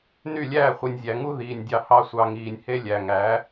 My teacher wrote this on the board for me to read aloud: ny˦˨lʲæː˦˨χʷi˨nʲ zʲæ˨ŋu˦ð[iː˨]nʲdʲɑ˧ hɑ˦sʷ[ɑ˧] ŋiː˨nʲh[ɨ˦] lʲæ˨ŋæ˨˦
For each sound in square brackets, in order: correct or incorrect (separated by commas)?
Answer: correct, correct, incorrect